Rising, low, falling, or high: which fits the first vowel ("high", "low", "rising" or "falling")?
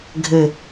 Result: low